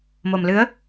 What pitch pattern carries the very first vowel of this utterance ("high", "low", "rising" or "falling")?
low